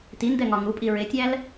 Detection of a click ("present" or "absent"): absent